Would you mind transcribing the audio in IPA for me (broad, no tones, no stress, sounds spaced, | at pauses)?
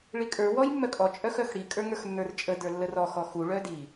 ɭ i kʼ ə˞ w ɔ j mː œ kʼ ɔ t͡ʃʼ œ x œ x ɽ i kʼ ə˞ ŋ ə˞ x nː ə˞ r t͡ʃʼ ə d ə˞ lː ə r ɔ x ɔ x u ɭ œ d i